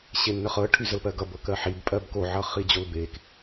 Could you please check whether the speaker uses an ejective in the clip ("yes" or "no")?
yes